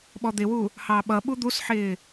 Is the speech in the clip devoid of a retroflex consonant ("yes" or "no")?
yes